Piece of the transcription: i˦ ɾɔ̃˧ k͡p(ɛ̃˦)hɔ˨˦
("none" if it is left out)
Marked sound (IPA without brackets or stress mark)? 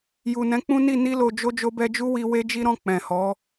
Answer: ɛ̃˨